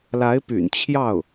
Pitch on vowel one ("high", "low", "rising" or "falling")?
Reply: rising